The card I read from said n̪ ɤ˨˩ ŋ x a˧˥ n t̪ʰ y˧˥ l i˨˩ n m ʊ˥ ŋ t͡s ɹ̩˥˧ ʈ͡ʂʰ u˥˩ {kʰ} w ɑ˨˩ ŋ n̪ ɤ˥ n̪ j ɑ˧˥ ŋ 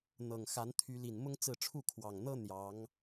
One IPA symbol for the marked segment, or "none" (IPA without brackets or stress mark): kʰ